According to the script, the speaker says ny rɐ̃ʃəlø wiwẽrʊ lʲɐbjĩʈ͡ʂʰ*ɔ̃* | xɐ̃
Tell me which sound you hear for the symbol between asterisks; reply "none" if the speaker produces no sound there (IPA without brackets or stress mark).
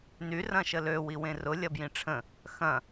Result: ə̃